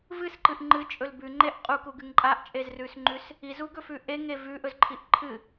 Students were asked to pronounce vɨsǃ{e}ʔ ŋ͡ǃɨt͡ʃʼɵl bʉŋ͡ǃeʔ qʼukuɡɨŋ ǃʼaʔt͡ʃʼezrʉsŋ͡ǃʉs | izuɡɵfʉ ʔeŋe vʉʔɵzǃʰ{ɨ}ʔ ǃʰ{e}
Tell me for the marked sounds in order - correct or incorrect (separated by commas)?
incorrect, incorrect, incorrect